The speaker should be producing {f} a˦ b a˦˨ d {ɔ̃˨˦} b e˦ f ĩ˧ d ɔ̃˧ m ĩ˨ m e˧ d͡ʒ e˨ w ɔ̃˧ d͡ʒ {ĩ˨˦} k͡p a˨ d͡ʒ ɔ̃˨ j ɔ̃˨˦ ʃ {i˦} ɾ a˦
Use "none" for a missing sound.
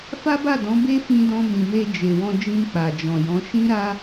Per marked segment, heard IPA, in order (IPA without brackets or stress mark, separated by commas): f, ɔ̃˨˦, ĩ˧, ĩ˦